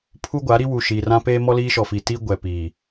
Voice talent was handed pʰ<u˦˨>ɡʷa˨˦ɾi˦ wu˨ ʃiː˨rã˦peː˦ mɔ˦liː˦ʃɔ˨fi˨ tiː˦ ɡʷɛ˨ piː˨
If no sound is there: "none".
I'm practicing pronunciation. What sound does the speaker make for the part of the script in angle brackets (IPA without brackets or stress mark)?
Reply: u˦